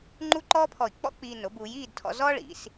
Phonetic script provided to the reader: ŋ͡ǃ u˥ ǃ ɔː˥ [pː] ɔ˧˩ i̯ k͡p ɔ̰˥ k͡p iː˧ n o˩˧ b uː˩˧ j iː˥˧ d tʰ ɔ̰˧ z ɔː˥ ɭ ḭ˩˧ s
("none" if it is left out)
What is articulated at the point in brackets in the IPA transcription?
pʰ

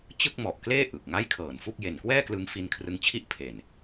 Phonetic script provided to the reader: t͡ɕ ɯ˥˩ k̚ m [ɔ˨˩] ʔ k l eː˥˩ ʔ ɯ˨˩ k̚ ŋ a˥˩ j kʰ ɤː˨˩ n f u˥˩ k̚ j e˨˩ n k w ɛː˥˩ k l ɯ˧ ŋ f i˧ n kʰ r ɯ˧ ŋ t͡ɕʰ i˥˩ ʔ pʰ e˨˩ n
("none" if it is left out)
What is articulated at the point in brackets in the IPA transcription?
ɔ˨˩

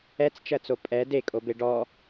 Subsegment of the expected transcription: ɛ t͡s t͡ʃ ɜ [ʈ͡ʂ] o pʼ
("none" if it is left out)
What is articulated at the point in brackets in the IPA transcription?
t͡s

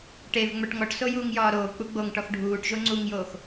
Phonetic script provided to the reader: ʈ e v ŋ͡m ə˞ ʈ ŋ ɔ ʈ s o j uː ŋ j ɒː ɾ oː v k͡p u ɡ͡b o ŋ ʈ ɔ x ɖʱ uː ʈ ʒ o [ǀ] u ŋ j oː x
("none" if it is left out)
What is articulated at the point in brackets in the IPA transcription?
ŋ͡ǀ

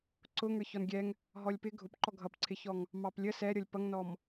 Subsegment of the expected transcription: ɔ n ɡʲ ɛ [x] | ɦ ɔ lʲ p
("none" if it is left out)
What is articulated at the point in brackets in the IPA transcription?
ŋ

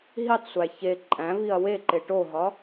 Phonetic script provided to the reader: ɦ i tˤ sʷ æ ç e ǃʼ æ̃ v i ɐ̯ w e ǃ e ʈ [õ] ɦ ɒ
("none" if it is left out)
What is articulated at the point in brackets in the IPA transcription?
o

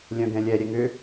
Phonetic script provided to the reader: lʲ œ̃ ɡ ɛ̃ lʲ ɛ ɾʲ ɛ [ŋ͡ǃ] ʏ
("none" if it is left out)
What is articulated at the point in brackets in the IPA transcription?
ŋ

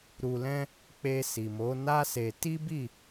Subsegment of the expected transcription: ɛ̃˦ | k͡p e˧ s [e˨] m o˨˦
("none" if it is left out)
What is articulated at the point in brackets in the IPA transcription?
i˨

